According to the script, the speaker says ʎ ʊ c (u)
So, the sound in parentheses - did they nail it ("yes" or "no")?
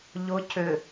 no